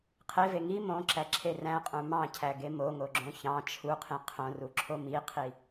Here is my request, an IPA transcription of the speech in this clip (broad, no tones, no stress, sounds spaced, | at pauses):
qʰ e v e ŋ i m õ ǁ æ ǁʰ e r æ̃ qʼ ũ m ɑ̃ cʰ æ ɡ e m o ŋ o ɡ͡ǁ õ ç ɑ̃ t͡ʃʰ u qʰ ĩ qʰ õ r u ǁʰ o m i qʰ i